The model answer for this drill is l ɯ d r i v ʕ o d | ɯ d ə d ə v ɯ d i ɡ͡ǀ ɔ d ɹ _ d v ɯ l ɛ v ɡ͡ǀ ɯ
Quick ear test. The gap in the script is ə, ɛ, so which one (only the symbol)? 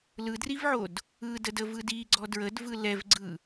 ə